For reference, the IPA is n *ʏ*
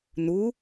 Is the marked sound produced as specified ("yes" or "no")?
no